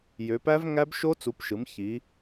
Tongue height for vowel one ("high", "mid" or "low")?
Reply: mid